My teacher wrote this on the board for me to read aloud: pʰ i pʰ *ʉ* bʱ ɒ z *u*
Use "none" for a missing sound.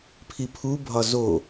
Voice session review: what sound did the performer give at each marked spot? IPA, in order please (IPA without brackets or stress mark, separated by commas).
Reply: u, o